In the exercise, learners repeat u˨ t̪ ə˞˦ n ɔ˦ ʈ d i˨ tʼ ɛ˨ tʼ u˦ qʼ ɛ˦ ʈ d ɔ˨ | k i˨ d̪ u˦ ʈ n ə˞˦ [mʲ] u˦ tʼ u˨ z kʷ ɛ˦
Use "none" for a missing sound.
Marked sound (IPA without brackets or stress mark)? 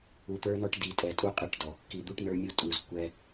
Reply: mʲ